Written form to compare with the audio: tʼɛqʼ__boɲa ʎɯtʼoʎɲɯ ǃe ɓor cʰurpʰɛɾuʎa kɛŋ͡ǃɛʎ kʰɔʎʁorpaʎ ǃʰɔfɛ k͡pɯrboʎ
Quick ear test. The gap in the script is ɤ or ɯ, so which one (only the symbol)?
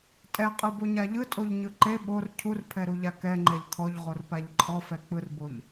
ɯ